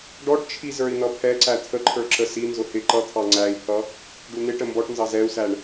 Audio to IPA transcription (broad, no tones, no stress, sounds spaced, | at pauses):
ɖ ɔ ʈ t͡ʃʰ i z ə˞ i̯ n̪ ʌ pʰ ɛ ǀ æ t̪ʰ ə ǃʰ ə˞ ǁ ə s i n z ʊ h ɪ ǃ ʌ t̪ʰ ɑ ŋ͡ǀ æ i̯ pʰ ʌ | ɖ u n̪ ɪ ʈ ə m b ɔ ʈ n z ɑ z ɛ u̯ s æ ɳ